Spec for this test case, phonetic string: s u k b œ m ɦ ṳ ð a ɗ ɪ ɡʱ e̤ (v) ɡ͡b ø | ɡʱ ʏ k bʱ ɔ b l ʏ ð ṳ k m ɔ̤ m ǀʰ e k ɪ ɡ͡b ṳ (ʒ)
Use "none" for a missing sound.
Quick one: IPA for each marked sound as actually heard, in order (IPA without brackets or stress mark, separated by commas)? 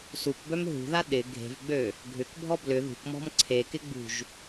v, ʒ